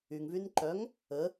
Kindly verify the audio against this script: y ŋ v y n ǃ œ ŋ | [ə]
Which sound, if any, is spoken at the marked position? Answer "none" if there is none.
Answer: ə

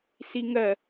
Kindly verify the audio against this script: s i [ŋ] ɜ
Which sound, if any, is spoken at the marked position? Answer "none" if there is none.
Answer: ŋ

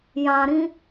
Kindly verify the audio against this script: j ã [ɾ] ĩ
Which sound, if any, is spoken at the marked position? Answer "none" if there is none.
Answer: ɾ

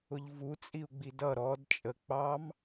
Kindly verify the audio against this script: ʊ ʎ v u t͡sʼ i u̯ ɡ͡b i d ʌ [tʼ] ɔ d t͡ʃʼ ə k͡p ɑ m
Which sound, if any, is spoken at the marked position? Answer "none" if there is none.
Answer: ɾ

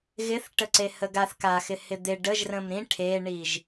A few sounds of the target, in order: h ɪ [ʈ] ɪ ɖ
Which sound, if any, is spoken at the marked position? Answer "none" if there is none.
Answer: d̪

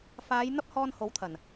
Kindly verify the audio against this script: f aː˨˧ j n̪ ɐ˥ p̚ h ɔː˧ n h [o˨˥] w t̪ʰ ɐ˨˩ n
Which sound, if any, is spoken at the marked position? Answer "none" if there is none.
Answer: o˨˥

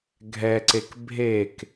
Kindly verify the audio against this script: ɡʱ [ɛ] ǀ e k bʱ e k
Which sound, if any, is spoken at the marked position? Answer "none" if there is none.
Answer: ɛ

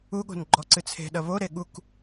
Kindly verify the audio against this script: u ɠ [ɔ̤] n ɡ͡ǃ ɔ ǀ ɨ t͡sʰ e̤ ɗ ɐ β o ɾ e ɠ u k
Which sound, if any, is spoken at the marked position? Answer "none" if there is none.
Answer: o̤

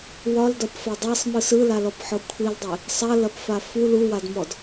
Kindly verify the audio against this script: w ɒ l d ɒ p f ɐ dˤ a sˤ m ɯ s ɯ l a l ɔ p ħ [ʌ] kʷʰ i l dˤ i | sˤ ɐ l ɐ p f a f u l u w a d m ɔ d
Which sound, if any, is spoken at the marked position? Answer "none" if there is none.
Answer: ɔ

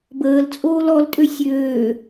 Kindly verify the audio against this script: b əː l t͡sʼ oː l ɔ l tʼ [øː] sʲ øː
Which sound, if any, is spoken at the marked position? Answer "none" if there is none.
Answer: ø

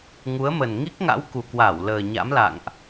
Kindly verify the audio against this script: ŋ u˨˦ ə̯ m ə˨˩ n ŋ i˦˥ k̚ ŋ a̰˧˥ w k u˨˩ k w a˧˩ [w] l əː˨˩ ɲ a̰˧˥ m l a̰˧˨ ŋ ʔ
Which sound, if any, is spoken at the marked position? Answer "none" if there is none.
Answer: w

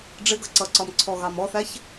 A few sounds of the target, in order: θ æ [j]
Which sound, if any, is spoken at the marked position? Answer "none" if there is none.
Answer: ç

